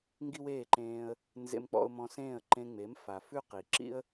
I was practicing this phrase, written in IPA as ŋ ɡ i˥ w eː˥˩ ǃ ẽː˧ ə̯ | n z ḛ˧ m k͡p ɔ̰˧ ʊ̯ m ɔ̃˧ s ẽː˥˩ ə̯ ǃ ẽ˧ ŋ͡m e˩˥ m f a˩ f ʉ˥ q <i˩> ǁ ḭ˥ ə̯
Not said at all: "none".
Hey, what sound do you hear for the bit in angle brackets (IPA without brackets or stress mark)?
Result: i˩